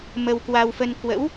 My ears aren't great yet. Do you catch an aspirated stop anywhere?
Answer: no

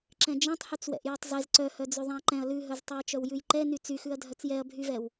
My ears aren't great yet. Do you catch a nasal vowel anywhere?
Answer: yes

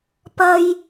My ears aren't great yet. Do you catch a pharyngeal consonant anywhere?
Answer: no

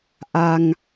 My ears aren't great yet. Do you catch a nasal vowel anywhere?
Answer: no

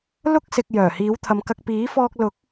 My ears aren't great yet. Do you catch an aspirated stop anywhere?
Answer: yes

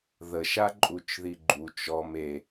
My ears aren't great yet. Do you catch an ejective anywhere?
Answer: yes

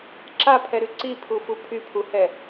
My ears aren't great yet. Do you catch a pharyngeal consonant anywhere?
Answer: no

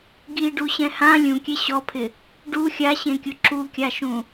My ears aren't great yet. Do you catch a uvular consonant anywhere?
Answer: no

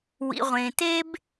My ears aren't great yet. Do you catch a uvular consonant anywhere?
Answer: yes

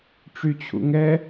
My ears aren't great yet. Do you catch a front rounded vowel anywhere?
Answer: yes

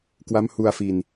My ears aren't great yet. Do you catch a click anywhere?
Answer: no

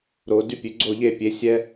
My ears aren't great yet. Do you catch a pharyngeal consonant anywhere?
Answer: no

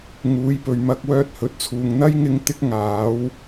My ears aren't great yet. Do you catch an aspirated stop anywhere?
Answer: yes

